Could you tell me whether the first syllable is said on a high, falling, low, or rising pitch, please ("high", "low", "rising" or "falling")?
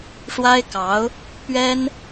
high